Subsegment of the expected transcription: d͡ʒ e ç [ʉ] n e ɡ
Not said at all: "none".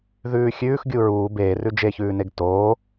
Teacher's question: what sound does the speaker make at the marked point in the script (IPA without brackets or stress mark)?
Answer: ʉː